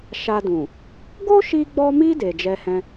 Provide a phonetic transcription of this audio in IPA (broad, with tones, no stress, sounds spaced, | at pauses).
ʃ a˧ d ũ˨ | ɡ o˦ ʃ i˧ ɡ͡b ɔ˧ m i˧ d e˨ d͡ʒ ɛ˧ h ɛ̃˧